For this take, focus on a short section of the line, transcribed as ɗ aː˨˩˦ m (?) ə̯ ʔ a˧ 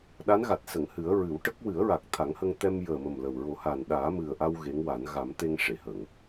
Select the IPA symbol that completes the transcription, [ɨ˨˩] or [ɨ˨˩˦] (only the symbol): ɨ˨˩